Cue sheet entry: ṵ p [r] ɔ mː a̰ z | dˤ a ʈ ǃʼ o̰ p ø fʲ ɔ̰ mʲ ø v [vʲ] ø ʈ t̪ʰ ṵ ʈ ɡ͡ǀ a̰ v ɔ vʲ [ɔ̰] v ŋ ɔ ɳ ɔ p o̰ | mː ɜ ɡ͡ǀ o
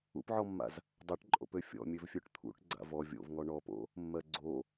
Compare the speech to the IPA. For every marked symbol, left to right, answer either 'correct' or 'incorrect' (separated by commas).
incorrect, incorrect, incorrect